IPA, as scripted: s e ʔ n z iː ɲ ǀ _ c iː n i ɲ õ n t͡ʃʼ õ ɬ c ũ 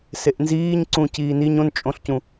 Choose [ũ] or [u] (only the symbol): ũ